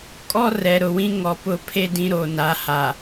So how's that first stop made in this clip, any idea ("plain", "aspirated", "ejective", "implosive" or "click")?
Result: ejective